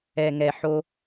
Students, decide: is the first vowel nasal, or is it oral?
oral